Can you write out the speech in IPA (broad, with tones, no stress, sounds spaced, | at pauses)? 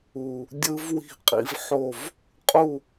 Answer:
u˨˩ | dʲ ɯ˦˥ v w i̤˥˨ qʼ ḭ˦˥ v ħ o˥˨ v | qʼ u˥˨